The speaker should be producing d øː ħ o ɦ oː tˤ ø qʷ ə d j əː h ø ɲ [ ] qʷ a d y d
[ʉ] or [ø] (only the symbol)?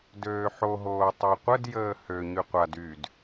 ʉ